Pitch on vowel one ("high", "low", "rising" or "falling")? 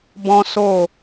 high